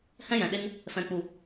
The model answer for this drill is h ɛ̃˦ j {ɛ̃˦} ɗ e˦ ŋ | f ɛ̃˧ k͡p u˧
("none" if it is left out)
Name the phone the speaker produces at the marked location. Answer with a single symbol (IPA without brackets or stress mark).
ɛ̃˨